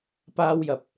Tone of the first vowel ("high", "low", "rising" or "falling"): high